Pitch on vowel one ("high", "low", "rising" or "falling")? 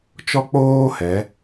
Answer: high